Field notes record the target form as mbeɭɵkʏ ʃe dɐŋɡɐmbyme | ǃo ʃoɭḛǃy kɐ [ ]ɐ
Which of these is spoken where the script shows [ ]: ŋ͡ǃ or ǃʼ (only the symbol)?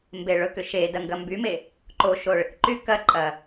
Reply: ǃʼ